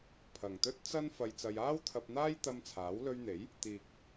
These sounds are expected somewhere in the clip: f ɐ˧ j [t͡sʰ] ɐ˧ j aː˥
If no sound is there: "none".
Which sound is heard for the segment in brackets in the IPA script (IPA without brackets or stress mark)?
t͡s